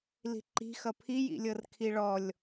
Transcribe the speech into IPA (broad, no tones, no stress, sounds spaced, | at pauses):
l i̤ ǃ i̤ x ʌ pʰ i j ḭ lʲ ɤ r kʰ i ɭ ɔ lʲ